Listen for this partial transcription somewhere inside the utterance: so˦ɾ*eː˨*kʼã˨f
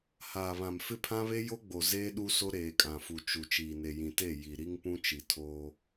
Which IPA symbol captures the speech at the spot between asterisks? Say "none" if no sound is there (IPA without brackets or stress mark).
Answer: eː˨